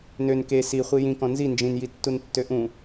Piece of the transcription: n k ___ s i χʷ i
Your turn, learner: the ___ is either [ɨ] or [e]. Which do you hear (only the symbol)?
e